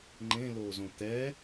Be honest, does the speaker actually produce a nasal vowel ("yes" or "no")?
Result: yes